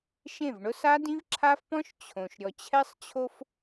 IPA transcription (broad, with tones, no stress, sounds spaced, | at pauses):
ʃ ẽ˦˨ v ɳ ʊ˦ s a˦ d ĩ˦ v ǁʰ a˦ f p ɔ̃˦ ʃ t͡ɕʰ õ˨ ʃ ɾʲ ɔ˨ t͡ɕʰ ɛ˦ sˤ t͡ɕʰ o˦ f